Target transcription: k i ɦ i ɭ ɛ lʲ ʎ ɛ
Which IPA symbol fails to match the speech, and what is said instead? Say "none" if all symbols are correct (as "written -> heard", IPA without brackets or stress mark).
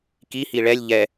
ɦ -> h